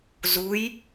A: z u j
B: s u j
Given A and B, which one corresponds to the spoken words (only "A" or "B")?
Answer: A